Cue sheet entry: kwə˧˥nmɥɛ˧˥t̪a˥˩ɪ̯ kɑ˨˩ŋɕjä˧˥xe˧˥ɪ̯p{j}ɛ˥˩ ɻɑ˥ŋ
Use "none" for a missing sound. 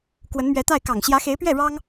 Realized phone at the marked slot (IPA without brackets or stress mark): ɥ